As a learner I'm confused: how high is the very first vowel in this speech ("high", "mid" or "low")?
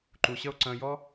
high